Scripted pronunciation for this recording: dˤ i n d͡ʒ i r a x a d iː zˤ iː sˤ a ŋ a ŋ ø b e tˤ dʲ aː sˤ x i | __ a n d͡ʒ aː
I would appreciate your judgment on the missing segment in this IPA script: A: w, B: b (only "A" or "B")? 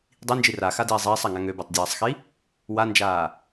A